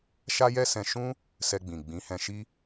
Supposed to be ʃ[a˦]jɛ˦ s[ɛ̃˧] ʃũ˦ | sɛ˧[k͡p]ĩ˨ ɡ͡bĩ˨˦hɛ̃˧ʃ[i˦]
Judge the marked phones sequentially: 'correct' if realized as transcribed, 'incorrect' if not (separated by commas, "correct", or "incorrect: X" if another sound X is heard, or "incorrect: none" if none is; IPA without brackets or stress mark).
correct, correct, incorrect: ɡ͡b, correct